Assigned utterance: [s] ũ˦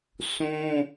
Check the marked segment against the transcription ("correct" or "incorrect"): correct